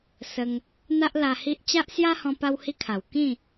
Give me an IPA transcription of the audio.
s ə˧ ŋ | n̪ a˦ ʔ l a˧ h i˦ ʔ t͡ɕ a˦ ʔ s j a˦ h ɔ̃˧ p a˦ w h i˦ kʰ a˨˩ w k ĩ˥˧

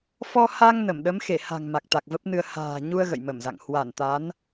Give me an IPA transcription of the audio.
f ɔ˧ h a˧ ŋ n ə˧˩ m ɗ ə˨˦ m x e˧˩ h a̤˨˩ ŋ m a˨˩ k̚ t̪ a˨˩ k̚ v ə˦˥ p̚ n ɨ˧ ə̯ h a̤ː˨˩ ɲ u˧ ə̯ ɣ ə̰˧˨ j m ə˧˩ m z a̰˧˨ ŋ h w a˧˩ n t̪ a˨˦ n

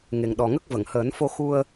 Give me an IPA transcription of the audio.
ŋ e˨˩ ŋ ɗ ɔ˨˩ ŋ ə˦˥ k̚ v ə˨˩˨ ŋ h əː˨˩˦ n f o˧ x u˧ ə̯

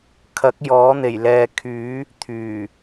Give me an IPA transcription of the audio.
kʰ ɐ˨˥ k̚ j ɔː˨˥ n̪ e˨˩ j l ɛː˨ kʰ yː˨˥ | t̪ʰ yː˨˩

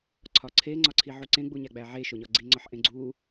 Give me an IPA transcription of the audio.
ǀʰ ɒ ǀʰ e ŋ͡ǀ ɒ ǀʰ i ʕ u ǀ ẽ ɡ͡b u ɲ æ ɡ͡b æ ʕ e ʃ o ɲ ɒ ɡ͡ǀ i ŋ͡ǀ ɒ ħ ʔ ẽ ɡ͡ǀ u

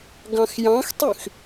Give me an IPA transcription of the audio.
ɡ ɑ̃ x j ɑ̃ x tˤ y x

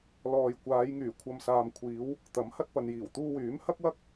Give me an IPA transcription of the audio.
l ɔː˨ j kʷ aː˨˧ j ŋ yː˨˩ kʷʰ ɐ˨ m s aː˨ m kʷʰ iː˨˧ w | t̪ ɐ˨˥ m h ɐ˧ t̚ p ɐ˨ n j iː˨˩ w t̪ uː˧ w yː˨˥ m h ɐ˥ k̚ w ɐ˥ k̚

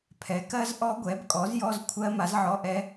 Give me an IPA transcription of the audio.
pʰ ɛ˩˥ k ɜ˦˥ z ʔ ɔ˦˥ ɡʷ ɛ˩˥ b kʼ ɔ˩˥ z j ɔ˧˥˧ z kʷʰ ɜ˦˥ m a˩˥ z ʕ ɔ˧˥˧ ʔ ɛ˦˥

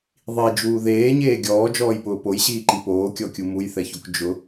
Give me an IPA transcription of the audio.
ðˤ i d͡ʒ uː ð eː ɲ eː ɡʲ ɔː d͡ʒ ɔː j p ʊː p o j ɕ iː ǃ i p oː kʲ ɔ kʲ u m u j θ ɛ ç o k d͡ʒ ʊ

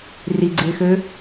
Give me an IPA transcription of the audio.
r i ɡ͡ǀ ɪː x ø

